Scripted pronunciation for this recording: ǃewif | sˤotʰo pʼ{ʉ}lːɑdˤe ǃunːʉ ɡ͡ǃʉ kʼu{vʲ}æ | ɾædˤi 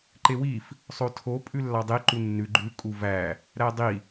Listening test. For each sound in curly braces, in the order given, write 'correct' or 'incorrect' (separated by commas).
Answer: correct, incorrect